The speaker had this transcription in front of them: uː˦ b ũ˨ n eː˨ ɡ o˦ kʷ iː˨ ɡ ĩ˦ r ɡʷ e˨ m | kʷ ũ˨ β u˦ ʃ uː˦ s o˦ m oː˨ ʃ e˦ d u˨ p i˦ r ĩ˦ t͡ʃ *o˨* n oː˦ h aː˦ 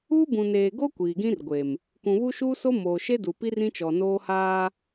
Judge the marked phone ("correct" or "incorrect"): incorrect